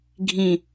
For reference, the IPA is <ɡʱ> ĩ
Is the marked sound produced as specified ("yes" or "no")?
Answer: yes